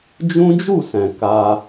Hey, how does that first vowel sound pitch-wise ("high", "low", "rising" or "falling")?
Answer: high